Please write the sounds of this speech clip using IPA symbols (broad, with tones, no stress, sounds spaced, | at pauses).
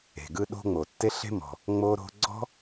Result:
e̤˩ ɡ ɯ˦ ɗ o̤˦ ŋ͡m o˩ tː e˦ ɬ e̤˥ m ɔ̤˩ | ŋ͡m o˦ ɾ o̤˦ ɡ͡ǀ ɔ̤˥